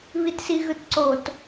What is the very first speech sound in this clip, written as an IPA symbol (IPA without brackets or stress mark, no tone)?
β